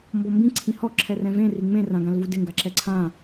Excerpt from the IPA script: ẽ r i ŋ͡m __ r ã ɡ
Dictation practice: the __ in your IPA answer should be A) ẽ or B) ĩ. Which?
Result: A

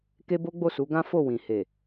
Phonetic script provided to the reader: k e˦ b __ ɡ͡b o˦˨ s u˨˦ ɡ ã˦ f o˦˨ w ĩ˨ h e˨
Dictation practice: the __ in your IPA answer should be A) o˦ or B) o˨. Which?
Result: A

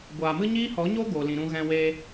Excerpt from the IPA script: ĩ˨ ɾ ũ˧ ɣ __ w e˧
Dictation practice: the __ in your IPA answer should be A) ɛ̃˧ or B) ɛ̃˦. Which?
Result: A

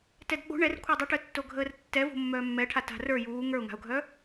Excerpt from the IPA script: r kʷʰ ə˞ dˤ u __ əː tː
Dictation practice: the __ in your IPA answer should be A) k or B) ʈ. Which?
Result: B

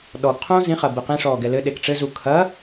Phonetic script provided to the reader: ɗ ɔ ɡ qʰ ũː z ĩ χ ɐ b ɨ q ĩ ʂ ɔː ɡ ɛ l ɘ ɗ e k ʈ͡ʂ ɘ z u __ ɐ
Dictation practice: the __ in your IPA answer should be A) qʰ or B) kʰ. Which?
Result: B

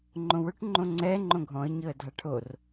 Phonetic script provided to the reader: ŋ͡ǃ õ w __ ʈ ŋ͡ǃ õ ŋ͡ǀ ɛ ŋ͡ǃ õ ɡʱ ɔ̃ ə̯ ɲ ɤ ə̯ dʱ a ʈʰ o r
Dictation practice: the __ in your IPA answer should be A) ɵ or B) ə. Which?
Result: A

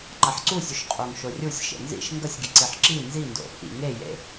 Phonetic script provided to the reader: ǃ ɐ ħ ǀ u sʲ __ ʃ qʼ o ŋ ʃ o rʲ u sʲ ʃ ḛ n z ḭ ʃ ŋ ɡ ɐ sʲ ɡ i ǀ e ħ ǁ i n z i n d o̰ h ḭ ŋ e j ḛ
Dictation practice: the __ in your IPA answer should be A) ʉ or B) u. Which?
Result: A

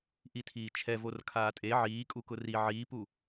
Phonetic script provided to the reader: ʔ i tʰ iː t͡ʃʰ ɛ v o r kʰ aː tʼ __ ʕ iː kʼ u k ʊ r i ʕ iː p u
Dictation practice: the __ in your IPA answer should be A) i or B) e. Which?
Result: B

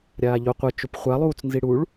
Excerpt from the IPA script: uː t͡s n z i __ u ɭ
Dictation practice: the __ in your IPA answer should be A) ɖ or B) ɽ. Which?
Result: B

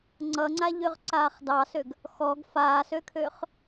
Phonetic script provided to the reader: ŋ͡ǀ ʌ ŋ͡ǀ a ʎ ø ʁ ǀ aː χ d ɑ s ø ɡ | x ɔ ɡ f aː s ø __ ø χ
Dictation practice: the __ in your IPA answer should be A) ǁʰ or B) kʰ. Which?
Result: B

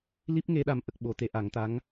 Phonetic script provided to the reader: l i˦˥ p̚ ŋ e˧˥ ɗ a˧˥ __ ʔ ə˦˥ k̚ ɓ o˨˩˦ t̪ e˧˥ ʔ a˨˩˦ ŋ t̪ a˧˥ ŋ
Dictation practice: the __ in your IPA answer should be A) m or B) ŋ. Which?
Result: A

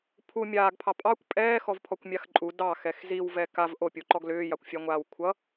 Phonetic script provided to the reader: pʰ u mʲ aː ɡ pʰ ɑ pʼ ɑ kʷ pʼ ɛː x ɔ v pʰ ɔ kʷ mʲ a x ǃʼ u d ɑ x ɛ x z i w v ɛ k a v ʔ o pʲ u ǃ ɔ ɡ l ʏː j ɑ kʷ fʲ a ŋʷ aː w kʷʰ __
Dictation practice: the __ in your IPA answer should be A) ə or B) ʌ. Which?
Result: B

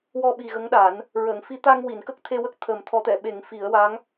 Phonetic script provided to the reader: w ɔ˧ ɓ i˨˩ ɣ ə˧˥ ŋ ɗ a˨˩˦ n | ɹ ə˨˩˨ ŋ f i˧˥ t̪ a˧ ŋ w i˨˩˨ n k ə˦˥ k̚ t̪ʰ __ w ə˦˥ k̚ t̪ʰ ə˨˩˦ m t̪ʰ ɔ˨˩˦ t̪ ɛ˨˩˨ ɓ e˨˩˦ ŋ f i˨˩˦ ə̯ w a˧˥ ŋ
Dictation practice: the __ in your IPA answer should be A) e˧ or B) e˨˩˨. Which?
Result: A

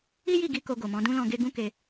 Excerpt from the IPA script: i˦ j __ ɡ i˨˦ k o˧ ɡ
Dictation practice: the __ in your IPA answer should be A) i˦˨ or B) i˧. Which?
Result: A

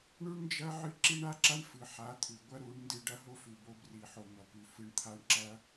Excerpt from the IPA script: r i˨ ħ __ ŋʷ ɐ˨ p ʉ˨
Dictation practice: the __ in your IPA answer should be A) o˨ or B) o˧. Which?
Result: A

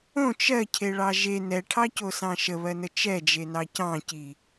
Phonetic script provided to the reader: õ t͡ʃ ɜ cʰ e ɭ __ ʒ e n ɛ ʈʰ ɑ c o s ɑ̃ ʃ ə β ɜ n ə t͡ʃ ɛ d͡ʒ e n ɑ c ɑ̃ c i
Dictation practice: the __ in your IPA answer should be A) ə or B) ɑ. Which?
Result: B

